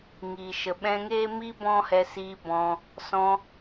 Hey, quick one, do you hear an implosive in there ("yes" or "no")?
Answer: yes